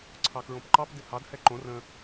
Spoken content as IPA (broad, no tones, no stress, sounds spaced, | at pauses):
ǀʰ ɑ k ɹ õ p ǃ ɑ p d ɪ h ɑ d h ɛ ǃ õ r ə̃